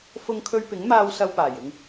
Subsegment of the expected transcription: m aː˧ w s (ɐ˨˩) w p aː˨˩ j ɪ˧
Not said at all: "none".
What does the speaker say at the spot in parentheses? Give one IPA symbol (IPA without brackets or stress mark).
ɐ˧